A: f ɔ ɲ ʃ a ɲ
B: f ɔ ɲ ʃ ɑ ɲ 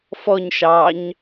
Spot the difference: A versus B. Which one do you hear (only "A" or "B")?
B